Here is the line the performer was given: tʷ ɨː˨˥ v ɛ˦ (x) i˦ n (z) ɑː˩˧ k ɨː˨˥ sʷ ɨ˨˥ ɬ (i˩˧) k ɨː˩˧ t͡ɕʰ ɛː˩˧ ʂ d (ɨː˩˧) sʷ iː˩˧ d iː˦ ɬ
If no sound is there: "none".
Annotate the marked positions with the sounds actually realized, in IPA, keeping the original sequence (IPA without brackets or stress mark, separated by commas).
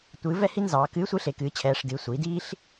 h, z, e˩˧, ɨː˩˧